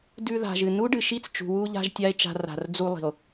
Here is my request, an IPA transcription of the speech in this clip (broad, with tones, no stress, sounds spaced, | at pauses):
d ʉ˧ ð a̤˨ ʒ ɨ˨ n u˦ ɖ ɨ˨ ʃ i˦ t͡s t͡ʃ ṳ˨ w u˧ ʎ a̤˧ ʒ tʲ a˦ e̯ t͡ʃ a̤˧ r a̤˨ r d͡z u˧ lˠ i̤˨ o̯